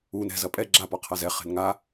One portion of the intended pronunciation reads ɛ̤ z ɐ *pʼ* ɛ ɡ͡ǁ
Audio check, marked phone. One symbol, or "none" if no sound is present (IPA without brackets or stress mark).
pʼ